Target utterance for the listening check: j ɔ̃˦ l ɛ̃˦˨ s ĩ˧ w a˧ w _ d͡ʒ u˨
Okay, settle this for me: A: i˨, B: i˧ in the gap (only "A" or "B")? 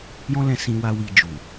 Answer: B